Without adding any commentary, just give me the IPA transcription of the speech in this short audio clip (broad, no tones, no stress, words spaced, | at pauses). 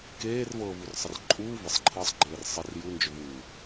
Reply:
keːrvɤːvur sˤərǃʼuː vəsˤǃʰɤːsˤ ɡ͡ǃeːrsˤər ju nd͡ʒʏvuː